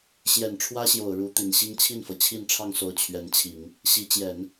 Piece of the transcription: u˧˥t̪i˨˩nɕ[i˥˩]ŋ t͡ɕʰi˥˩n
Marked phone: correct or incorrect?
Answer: incorrect